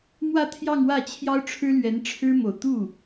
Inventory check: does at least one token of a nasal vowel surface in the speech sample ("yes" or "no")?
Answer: no